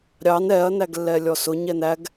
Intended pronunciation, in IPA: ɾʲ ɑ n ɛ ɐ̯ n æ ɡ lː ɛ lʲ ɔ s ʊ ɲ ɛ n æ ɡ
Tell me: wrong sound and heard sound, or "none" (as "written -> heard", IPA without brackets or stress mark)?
none